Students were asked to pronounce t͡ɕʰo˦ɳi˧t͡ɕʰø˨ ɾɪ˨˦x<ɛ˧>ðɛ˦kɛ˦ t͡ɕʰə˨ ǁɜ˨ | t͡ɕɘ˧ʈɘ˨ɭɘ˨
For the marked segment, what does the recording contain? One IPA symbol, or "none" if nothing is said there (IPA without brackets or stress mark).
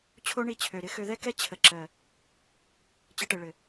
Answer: ø˧